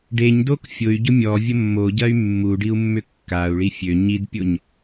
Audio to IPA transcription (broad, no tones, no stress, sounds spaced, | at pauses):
ɖ e ɲ d o k fʲ ʊ y̯ ɟ ʊ mʲ ɔ vʲ ə mː o ɟ ɐ y̯ mː u ɖ i u̯ mː ʏ kː a u̯ ɭ i fʲ ø ɲ i d pʲ o ɲ